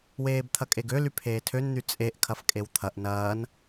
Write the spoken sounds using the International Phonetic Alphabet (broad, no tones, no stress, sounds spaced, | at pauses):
w eː b t̪ʰ ɐ kʼ e ɡ ø l y pʰ eː tʰ ø n n̪ y t͡sʼ e ʔ kʰ ɐ f kʼ e w t̪ʰ ɐ ʔ n ɐː n